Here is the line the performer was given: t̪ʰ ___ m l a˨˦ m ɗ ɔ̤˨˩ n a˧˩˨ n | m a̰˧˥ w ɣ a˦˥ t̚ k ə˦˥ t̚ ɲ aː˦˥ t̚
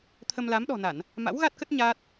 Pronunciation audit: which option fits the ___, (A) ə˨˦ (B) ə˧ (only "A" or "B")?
B